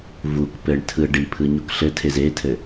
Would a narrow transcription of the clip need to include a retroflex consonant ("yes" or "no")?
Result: yes